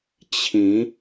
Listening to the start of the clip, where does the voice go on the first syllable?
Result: rising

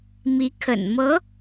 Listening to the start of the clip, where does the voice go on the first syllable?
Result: rising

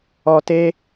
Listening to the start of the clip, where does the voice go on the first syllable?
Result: low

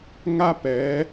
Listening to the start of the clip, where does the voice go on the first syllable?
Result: high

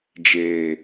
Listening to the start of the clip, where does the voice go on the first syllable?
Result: low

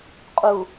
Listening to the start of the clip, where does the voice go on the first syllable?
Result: low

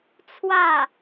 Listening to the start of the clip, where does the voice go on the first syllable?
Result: falling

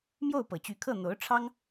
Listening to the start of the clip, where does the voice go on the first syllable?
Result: falling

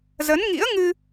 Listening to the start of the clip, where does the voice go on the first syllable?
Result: rising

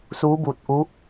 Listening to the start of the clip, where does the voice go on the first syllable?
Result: rising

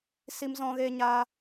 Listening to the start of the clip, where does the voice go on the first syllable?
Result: high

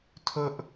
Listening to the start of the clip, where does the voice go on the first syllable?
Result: high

